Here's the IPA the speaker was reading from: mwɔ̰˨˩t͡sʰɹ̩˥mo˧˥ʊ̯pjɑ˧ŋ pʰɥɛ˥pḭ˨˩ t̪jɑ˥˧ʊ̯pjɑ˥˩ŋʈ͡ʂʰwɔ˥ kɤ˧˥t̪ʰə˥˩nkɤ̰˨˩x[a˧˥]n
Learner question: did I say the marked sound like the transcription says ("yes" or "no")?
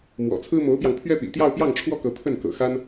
no